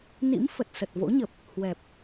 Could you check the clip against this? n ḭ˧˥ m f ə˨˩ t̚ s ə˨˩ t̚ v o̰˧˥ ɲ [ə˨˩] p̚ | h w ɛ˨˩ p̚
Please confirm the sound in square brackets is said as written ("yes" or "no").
yes